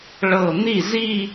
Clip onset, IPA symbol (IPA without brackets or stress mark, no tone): ɭ